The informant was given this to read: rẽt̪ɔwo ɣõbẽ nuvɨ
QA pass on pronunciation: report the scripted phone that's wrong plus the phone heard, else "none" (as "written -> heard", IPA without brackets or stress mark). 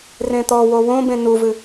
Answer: ɣ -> w